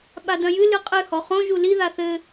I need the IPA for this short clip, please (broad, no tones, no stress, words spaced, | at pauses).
ɓadɐ̃jɨ lɨqʼɨ hɔχõ ʒuli ðaθɘ